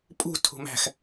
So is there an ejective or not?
yes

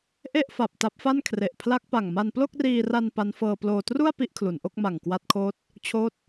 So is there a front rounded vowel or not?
no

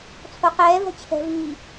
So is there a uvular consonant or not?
yes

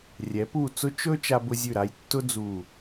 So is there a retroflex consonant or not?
no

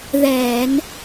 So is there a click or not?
no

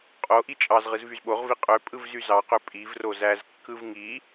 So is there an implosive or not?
yes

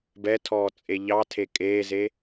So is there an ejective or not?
yes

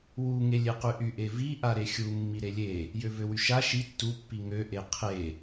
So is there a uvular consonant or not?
yes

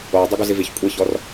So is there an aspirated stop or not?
no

